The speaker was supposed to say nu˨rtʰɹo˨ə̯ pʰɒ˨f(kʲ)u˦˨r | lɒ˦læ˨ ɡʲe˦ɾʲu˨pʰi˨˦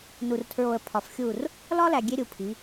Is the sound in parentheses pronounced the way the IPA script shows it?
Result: no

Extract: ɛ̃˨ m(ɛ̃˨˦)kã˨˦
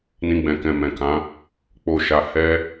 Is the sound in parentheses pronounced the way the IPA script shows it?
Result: no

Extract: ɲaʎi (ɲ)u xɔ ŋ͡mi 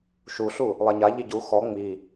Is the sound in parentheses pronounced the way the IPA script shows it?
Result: no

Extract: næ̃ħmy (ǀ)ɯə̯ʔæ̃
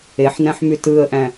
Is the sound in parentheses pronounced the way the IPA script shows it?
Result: no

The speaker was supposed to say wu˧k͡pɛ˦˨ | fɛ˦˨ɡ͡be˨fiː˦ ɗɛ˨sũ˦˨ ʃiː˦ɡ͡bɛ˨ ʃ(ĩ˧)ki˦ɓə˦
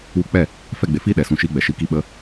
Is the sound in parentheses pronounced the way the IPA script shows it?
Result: no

